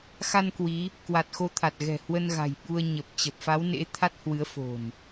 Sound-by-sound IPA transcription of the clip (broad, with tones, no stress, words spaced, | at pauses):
xa˧n kwi˨˦ | kwa˨˩t̚xo˧t̪ʰa˨˩t̚ ɣɛ̤˨˩ hwə˧nɣa̤˨˩j ɓu˧ə̯ ɲə˨˩p̚ t͡ɕə˨˩p̚ fa˨˦wnḛ˧˥ t̪ʰa˦˥t̚hwɨ˨˦ə̯ fo̤˨˩n